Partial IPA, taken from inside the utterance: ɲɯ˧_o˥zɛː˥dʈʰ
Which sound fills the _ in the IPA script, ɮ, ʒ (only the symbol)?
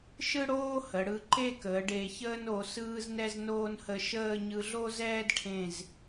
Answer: ɮ